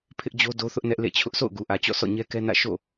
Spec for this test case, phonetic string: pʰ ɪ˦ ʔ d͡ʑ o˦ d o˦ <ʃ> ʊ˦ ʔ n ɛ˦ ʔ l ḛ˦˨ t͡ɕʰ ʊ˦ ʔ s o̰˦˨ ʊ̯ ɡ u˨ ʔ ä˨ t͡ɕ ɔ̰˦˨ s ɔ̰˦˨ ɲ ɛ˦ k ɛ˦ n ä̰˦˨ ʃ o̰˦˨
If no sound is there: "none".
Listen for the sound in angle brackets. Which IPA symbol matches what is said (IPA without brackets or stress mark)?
θ